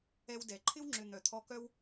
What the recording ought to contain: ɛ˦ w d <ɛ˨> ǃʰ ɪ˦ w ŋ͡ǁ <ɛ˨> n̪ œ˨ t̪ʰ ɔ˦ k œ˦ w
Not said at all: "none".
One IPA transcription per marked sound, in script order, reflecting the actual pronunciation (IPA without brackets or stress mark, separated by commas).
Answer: ɛ˨, ʏ˨